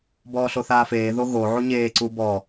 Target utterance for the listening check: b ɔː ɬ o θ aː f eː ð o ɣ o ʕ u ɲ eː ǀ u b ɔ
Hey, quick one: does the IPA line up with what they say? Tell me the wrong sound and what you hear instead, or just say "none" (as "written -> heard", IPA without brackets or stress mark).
none